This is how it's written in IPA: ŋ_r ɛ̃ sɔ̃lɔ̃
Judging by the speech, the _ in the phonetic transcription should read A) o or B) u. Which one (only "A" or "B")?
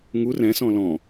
B